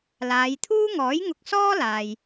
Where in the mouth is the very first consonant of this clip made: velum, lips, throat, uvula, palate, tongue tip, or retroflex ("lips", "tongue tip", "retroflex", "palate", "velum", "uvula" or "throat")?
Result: tongue tip